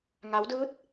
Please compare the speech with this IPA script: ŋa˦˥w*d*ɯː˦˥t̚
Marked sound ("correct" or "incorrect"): correct